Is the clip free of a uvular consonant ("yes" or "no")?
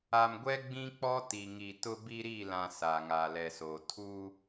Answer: yes